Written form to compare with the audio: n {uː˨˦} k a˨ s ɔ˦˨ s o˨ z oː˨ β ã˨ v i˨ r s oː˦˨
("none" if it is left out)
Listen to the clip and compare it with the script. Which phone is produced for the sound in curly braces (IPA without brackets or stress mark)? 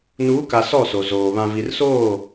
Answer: uː˨˦